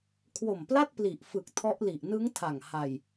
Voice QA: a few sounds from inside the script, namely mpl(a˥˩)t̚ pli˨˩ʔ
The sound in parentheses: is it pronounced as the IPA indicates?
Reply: yes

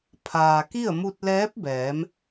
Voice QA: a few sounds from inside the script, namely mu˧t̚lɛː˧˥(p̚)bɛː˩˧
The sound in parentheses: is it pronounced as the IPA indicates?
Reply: yes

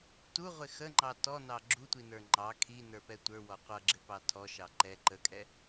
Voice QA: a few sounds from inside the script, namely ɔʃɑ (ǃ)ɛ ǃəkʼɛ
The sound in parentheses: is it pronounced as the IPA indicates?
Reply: yes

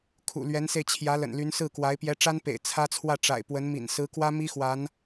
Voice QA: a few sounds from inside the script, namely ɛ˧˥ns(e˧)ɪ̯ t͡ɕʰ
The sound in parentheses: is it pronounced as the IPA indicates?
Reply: yes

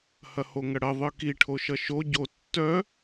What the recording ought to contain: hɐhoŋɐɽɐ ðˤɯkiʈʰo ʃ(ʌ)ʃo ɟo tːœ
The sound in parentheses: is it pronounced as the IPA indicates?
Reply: yes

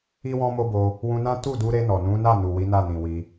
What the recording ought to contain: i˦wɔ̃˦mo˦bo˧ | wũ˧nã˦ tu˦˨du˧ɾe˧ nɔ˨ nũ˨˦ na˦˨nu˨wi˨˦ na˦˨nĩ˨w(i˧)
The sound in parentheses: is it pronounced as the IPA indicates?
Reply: yes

